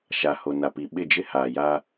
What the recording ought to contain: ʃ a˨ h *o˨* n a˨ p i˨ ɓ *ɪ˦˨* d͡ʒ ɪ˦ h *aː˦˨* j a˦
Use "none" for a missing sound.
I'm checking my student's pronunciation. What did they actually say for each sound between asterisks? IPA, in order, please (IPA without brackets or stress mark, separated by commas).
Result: o˨, ɪ˦˨, aː˨